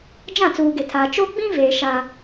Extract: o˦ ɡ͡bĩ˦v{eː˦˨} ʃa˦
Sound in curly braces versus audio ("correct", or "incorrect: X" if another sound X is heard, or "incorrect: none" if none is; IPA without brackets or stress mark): incorrect: eː˨